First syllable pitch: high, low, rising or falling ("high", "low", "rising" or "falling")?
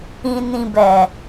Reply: low